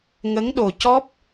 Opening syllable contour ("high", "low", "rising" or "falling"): rising